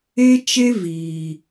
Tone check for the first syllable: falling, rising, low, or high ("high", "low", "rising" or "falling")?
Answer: high